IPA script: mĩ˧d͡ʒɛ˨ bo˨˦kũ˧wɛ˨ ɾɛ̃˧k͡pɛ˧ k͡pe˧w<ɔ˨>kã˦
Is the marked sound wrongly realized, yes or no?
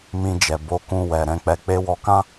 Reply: yes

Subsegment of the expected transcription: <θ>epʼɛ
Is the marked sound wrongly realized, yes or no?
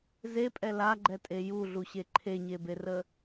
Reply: yes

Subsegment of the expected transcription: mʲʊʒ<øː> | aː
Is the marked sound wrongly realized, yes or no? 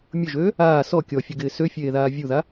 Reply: no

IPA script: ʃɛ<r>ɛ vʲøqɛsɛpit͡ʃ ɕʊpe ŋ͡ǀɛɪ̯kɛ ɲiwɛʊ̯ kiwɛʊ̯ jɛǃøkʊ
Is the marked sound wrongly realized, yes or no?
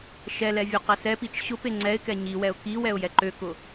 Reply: yes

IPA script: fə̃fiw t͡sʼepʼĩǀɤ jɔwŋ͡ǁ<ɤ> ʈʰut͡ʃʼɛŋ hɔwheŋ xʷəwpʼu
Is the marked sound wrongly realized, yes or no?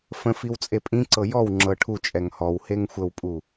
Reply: no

